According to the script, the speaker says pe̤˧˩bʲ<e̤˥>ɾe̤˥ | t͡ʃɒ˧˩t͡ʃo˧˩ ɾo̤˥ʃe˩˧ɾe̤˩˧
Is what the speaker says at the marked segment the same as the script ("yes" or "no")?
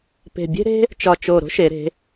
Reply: yes